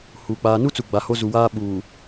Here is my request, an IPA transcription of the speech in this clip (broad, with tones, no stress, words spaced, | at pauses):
hu˨ k͡paː˨nu˦t͡su˨ ɡ͡ba˨ho˦zu˨waː˦ ɓuː˨